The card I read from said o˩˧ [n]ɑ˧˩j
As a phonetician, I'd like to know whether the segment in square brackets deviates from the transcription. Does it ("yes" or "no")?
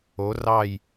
yes